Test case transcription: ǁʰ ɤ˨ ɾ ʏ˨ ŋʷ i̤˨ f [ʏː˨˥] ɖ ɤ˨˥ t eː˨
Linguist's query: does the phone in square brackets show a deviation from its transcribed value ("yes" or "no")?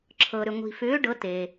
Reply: no